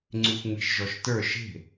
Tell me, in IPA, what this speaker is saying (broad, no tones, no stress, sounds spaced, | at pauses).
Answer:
ŋ͡ǀ y xʷ ŋ͡m e̤ ʃ ʒ ɔ ʃ t ə˞ ʃ e̤